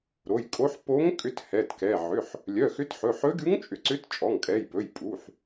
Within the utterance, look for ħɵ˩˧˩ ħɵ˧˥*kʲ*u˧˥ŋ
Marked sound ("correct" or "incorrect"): incorrect